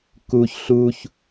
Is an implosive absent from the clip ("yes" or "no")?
yes